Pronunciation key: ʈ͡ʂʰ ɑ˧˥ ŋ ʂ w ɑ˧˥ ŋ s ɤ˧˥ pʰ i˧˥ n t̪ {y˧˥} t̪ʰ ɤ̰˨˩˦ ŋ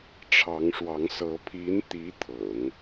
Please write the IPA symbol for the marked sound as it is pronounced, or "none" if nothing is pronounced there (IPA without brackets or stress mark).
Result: i˧˥